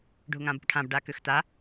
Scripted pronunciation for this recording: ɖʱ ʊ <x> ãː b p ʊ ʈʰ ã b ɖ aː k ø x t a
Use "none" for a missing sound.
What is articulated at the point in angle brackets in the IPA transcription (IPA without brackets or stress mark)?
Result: ŋ